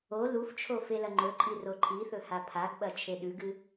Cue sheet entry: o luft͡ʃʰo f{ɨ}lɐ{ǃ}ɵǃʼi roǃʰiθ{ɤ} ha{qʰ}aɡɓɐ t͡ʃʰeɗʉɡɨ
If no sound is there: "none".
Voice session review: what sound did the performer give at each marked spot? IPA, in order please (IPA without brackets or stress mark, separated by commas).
e, ŋ͡ǃ, ɵ, pʰ